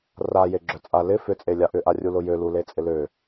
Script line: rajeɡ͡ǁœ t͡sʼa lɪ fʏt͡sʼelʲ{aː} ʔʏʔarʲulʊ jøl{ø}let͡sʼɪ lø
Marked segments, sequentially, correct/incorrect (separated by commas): incorrect, incorrect